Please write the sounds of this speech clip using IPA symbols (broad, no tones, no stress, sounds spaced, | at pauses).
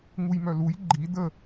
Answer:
ŋ u j m œ l u j ɡ͡ǃ i d ə